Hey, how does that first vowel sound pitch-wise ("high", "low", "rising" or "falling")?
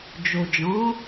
low